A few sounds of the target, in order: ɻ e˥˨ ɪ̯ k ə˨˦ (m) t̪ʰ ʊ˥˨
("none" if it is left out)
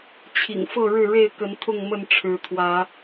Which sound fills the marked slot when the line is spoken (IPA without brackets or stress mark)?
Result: n